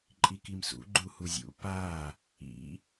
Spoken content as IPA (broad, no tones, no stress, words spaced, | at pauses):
ǃʼikimsṵ ɡ͡ǃuhuzʲṵ pa | ḭ